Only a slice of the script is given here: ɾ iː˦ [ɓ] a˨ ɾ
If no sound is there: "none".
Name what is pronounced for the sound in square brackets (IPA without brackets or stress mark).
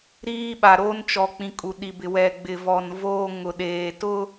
ɓ